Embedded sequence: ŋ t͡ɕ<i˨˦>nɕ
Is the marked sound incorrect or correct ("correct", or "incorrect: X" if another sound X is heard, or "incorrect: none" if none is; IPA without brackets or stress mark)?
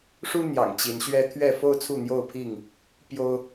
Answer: correct